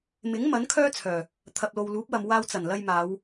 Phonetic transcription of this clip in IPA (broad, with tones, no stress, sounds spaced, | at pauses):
m ɪ˨˥ ŋ m ɐ˨˥ n kʰ œː˥ t͡sʰ œː˨˩ | t̪ʰ ɐ˨ p̚ l o˨ w l uː˨˥ p̚ w ɐ˨ m w aː˧ w t͡s ɐ˨˩ n l ɐ˧ j m aː˨˧ w